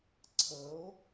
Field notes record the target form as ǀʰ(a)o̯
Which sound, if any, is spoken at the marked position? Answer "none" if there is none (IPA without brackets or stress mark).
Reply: ə